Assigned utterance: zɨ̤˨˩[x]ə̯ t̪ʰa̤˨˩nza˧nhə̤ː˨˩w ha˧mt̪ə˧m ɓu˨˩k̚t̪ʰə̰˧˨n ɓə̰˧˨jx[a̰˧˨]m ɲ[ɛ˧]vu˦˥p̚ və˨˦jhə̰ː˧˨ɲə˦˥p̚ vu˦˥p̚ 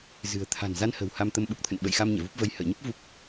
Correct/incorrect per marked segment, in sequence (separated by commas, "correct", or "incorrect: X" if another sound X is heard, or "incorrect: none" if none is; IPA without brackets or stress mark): incorrect: none, incorrect: a˧, incorrect: ɛ̰˧˨